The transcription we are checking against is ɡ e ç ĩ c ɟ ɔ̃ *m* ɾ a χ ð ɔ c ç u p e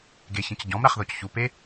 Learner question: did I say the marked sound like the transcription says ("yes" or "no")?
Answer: yes